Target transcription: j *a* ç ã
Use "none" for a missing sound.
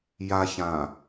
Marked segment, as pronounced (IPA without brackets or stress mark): a